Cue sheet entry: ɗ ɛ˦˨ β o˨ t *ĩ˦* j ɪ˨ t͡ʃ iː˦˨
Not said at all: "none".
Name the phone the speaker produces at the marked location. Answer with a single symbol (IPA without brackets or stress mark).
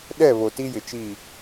i˦